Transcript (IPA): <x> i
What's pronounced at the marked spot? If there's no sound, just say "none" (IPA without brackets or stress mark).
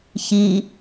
ç